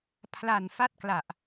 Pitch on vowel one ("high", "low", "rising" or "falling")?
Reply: low